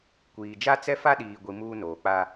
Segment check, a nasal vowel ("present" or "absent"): absent